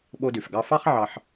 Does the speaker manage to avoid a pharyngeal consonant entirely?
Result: no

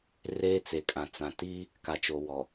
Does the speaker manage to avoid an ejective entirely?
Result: no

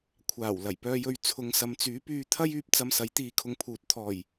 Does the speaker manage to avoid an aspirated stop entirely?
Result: no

